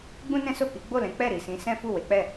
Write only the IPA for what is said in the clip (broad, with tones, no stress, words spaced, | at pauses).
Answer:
ɡ͡bũ˦nɛ̃˦so˦˨ki˨˦ ɡ͡bo˦˨lɛ̃˨˦ k͡pɛ˦˨ɾi˨sĩ˨˦ sɛ̃˦fu˦˨we˨˦k͡pɛ˦˨